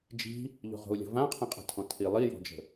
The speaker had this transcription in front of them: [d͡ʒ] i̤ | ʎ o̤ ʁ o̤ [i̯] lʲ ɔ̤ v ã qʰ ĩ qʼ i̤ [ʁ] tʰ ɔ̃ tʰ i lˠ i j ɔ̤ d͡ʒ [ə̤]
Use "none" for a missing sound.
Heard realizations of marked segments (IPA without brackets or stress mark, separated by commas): d͡ʒ, u̯, none, ə̤